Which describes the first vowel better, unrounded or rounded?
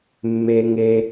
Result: unrounded